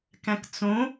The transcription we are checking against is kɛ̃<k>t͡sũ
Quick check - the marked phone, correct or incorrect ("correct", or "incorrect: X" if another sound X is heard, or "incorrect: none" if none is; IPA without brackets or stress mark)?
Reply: correct